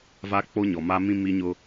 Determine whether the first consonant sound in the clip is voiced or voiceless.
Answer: voiced